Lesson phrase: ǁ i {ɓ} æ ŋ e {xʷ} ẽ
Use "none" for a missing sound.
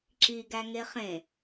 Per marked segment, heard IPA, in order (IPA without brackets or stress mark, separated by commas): ɡ, χ